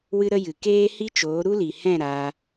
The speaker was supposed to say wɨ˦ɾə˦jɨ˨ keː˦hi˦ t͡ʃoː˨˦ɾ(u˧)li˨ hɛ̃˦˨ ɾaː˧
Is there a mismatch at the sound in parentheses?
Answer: yes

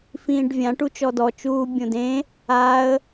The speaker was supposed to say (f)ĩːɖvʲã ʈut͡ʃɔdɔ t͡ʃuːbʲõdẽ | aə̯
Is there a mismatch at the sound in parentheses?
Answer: no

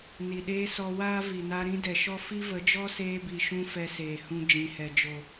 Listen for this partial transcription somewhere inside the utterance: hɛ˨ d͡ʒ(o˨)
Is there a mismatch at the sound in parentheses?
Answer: no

